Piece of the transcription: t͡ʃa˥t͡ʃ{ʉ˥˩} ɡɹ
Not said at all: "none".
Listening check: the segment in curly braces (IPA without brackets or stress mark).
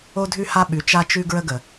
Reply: ʉ˥